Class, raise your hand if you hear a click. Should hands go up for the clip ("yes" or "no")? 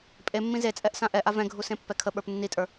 no